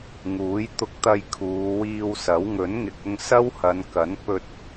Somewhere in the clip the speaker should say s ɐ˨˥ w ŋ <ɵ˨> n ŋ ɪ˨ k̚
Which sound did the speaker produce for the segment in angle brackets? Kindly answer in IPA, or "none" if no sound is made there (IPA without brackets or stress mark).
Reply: ɵ˨˥